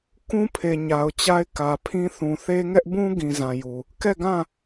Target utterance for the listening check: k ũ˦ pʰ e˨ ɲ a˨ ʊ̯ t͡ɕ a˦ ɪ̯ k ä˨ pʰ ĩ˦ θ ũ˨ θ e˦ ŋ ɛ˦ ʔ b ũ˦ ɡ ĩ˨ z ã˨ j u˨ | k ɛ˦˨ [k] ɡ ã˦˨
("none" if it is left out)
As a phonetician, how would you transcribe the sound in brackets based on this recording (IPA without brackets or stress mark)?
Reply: none